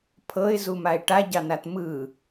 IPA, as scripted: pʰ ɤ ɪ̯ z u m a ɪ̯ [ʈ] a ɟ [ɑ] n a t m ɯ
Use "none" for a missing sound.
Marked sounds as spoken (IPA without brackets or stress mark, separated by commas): ʈ, ɑ